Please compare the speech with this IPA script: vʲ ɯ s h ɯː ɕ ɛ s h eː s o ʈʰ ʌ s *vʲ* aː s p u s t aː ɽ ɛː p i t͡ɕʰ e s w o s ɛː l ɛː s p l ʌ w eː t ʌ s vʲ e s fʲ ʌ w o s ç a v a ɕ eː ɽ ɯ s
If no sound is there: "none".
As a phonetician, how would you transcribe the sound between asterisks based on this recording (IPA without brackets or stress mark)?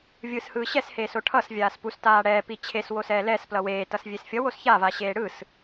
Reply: vʲ